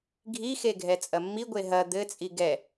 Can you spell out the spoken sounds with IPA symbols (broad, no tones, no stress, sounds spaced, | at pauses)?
ɡʱ i x e ɡʱ ɛ t͡sʼ ɐ mː i ɡʷ e ɦ ɐ d̪ ɘ t͡sʼ i ɡ ɛ